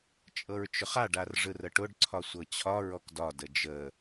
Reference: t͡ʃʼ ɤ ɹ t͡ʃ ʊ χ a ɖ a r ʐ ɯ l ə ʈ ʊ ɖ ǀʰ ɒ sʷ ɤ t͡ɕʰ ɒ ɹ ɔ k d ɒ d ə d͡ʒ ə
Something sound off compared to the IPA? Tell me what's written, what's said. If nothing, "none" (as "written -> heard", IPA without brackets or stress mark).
l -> r